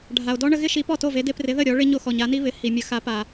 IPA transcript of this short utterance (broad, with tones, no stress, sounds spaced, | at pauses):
ɖʱ a˩ o̯ d ɔ˥ ɳ ə˧ ɣ ɪ˥ ʃ i˩˥ p ɔ˥˩ t o˥˩ v e˩˥ d e˧ p r ɪ˩˥ ð ə˥˩ ɾʲ ɔ˩˥ ɭ ɪ˥ ɲ o˥˩ x ɔ˩ ɲ a˩˥ n i˥ β ɪ˩˥ h i˩ mʲ ə˩˥ x a˩˥ p a˩